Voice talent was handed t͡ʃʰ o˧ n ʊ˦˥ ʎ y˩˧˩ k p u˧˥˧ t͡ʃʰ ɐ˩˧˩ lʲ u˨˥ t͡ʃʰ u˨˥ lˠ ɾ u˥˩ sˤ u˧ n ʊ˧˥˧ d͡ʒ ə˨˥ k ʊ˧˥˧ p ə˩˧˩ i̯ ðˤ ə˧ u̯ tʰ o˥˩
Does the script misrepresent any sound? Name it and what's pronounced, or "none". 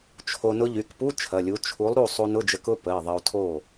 none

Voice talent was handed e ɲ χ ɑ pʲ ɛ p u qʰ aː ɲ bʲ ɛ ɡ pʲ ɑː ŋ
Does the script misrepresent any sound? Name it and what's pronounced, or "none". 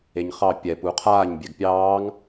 none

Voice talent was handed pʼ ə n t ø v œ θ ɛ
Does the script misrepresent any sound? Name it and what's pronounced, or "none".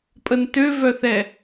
none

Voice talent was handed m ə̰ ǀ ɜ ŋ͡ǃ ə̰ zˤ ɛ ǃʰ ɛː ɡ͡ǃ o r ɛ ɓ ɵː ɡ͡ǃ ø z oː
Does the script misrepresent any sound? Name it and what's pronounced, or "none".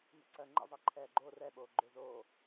ɵː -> oː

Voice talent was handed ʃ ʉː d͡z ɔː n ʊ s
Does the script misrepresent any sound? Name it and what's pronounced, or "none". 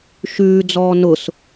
none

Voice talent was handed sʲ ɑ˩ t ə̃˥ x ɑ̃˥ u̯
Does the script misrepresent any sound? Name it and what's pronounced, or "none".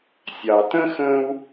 ɑ̃˥ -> ə̃˥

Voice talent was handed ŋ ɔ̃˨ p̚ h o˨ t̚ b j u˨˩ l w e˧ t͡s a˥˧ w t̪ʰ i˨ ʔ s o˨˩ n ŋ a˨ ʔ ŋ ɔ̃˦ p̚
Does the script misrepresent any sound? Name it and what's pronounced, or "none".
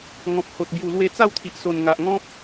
none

